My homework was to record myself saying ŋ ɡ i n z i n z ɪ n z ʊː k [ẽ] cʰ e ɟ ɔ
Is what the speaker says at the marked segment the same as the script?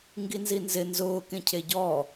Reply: yes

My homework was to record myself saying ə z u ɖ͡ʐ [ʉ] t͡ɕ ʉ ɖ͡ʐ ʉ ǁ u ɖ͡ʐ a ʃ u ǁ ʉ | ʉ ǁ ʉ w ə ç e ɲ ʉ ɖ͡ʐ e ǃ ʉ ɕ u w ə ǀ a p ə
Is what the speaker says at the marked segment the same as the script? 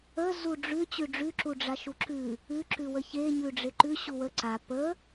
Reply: yes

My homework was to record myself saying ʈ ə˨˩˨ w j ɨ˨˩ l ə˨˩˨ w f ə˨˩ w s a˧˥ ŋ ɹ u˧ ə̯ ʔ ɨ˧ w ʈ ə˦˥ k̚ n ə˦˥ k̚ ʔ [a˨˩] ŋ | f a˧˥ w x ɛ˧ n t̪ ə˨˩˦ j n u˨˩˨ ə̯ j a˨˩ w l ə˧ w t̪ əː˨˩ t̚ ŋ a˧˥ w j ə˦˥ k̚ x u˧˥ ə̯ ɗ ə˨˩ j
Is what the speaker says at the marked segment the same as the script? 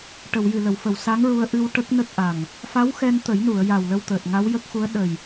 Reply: yes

